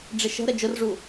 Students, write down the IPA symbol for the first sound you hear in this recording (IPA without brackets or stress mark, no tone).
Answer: ɖ͡ʐ